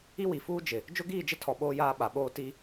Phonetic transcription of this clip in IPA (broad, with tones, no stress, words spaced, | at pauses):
i˦wi˨fuː˦ d͡ʒɪ˨ | d͡ʒʊ˦ɡiː˦˨d͡ʒɪ˦tʰɔ˨ ɓoː˦jaː˦ ɓa˨ɓoː˦ ti˦